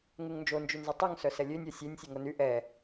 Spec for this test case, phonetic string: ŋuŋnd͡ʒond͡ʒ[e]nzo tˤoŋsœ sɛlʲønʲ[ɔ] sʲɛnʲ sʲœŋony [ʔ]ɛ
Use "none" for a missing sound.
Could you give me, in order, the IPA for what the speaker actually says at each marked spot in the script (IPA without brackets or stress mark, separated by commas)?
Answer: y, ɔ, ʔ